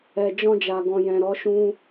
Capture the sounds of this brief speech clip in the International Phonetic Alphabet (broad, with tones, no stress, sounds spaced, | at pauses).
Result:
ɛ˨ d͡ʒ ɔ̃˧ d͡ʒ a˨ ɡ ɔ̃˨ j ɛ̃˨ ɾ ɔ˨˦ ʃ ũ˦